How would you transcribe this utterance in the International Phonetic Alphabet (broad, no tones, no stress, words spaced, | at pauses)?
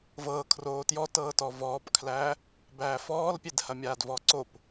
vɤː kʰroːtjɔ tɤːtɔvɔːpkʰlæː | bæːfɔːlpʲedhɐ mʲaːdvɔːǀop